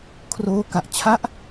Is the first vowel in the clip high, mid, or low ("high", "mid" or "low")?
mid